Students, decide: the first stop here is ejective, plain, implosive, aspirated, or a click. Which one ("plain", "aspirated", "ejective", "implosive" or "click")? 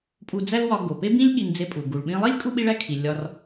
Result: ejective